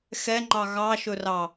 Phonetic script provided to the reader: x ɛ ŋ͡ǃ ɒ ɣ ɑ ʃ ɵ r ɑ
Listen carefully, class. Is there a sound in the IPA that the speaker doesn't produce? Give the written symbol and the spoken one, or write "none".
ɒ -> ɑ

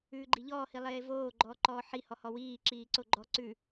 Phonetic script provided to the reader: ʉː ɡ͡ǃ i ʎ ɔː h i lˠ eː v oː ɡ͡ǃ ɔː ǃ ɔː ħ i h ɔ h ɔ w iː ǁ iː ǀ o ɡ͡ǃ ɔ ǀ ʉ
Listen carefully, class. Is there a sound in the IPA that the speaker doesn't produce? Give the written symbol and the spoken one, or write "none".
none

